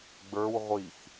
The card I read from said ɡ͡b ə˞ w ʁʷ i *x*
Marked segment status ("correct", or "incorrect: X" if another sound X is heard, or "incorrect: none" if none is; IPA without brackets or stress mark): correct